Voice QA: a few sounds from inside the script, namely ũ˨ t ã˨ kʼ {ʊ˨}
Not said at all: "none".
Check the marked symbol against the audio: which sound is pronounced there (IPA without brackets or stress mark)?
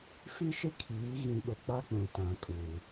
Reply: u˨